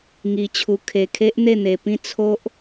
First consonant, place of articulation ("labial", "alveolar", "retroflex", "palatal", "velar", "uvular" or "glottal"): velar